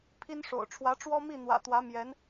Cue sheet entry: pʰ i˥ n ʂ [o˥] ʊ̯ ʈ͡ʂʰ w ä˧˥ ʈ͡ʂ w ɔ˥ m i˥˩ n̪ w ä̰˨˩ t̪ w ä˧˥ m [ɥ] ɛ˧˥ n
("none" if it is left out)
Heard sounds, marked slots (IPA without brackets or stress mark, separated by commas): o̰˨˩, j